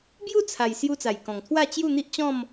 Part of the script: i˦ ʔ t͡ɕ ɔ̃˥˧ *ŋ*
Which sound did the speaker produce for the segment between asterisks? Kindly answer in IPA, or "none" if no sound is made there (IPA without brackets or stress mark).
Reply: m